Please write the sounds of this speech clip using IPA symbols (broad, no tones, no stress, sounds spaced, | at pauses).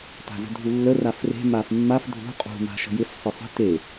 t a̤ z ə̤ dʱ u lː ə r a f r e̤ m a f mː a f dʱ ṳ qʼ ṳ m a̤ ʃ ə̤ j ɪ f sˤ ɪ sˤ ə̤ t e